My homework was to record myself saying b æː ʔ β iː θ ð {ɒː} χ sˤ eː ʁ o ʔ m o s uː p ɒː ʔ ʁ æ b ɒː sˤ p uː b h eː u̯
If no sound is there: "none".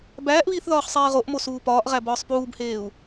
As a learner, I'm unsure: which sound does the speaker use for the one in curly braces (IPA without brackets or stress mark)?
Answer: ɒː